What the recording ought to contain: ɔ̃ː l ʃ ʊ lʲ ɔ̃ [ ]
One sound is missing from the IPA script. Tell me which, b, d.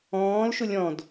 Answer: d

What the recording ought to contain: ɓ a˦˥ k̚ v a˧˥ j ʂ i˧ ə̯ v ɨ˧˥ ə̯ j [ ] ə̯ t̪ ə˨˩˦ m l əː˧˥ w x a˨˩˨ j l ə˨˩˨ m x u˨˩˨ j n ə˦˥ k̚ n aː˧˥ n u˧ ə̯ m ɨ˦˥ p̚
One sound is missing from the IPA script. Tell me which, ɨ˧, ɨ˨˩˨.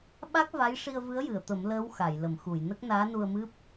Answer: ɨ˨˩˨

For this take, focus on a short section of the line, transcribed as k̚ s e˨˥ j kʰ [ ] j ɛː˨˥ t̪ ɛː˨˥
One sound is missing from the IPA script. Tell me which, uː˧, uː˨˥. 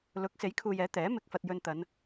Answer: uː˧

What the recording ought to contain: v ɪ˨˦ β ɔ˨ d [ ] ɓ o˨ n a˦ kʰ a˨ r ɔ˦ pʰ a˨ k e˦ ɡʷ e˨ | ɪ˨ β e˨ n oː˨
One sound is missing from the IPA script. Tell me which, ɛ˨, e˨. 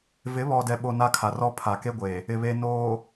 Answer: ɛ˨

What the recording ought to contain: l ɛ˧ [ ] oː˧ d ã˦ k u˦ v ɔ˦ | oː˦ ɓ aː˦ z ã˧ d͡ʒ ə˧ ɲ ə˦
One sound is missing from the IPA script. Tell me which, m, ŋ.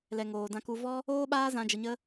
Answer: ŋ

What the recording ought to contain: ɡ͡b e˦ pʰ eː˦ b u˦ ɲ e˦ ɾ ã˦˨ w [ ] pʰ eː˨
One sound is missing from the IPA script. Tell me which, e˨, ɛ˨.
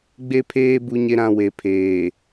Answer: e˨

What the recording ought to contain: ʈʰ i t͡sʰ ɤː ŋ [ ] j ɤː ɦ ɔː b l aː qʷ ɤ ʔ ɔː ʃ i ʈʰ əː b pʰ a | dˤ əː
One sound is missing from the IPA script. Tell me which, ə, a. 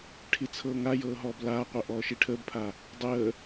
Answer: a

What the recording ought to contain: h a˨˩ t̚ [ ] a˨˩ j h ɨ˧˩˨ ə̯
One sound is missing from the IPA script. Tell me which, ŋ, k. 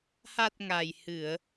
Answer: ŋ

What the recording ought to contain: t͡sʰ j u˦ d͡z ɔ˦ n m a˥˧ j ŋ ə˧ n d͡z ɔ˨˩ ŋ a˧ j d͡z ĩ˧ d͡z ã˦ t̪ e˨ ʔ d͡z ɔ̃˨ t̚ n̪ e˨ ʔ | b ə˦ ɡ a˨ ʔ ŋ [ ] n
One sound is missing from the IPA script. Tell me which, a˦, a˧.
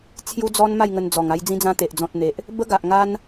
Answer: a˦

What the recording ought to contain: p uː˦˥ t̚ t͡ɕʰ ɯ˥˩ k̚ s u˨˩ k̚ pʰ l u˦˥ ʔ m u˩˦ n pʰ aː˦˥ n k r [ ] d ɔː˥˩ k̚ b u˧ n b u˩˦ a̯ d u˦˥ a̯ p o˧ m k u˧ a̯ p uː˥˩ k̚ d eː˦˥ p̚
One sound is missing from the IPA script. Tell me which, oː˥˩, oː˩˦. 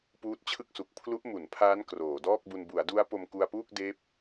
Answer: oː˩˦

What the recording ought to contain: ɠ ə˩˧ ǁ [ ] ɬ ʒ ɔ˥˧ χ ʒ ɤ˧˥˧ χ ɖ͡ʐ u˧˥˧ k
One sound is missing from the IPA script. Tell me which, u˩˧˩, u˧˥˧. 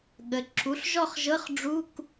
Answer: u˩˧˩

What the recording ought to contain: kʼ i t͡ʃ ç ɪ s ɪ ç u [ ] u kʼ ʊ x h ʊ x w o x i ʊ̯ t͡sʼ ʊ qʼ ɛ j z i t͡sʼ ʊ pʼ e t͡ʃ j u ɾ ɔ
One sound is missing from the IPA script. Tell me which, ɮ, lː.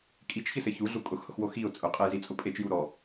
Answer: ɮ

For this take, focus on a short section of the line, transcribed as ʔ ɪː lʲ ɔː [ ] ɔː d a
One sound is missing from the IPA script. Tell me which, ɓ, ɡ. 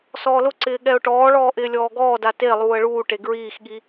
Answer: ɡ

